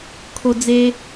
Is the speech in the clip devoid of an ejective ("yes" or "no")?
yes